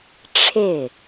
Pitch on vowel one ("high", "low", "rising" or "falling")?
falling